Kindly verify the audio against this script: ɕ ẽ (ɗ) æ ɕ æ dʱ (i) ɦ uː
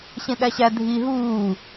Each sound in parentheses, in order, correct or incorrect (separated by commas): correct, correct